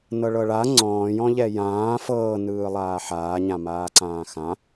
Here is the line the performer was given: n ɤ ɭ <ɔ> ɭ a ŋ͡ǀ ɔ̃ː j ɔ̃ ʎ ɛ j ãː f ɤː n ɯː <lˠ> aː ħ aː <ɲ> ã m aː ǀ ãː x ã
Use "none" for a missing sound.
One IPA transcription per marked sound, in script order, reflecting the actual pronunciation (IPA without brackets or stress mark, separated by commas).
ɤ, lˠ, ɲ